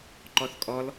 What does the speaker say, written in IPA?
ǃɔθkʼɔl

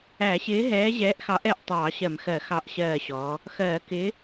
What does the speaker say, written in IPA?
æ˧˩˧ɕɪː˨˥ ɦɛː˨˥ʑɛː˨˥ʔxɑ˨˥ʔɛ˧˩ʔ tˤɑː˧˩˧ɕɜ˧˩˧mxɜ˧˩˧ xɑ˧˩ʔɕɜː˧˩ɕɔː˩˧ | xɜː˧˩˧kɪː˨˥

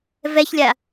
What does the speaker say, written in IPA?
vɛçlʲa

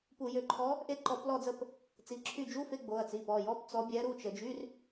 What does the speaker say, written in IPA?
pu˧˩˧jø˩˧˩ǃʰɔ˧˥ | ʔe˦˨ǃɔ˧˩˧plɔ˦˨d͡zə˦˨p | t͡si˩˧˩ǁʰy˦˨ d͡ʒu˧˥˧fe˧˥˧ ɡ͡bo˩˧˩ɐ̯t͡si˩˧˩pɔ˩˧˩ jɔ˧˥˧p t͡sɔ˧˥bʲɛ˧˥ ɾu˩˧˩t͡ʃə˧˩˧d͡ʒy˧˥˧r

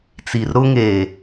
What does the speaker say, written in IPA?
t͡si˨r ɾʊ˦ ŋe˨

